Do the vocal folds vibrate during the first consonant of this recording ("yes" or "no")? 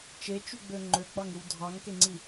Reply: no